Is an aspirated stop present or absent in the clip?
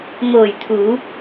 present